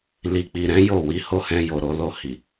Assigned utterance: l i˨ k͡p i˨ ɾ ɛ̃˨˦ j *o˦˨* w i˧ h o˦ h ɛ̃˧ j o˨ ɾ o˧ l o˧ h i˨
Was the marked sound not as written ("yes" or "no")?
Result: no